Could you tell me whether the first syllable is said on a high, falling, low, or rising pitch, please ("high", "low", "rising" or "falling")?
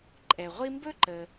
low